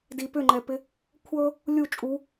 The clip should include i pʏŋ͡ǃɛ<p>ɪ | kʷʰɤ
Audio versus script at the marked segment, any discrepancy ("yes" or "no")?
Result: no